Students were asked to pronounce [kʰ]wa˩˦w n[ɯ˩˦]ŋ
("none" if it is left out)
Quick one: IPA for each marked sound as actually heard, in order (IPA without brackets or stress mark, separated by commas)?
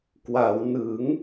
k, ɯ˩˦